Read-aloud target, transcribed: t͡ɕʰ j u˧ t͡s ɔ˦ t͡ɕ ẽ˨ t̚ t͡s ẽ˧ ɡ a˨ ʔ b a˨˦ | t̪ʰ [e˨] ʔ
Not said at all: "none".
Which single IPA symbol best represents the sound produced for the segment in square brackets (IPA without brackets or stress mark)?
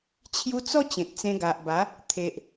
e˨